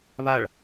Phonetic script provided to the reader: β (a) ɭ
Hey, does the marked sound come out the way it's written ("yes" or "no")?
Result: yes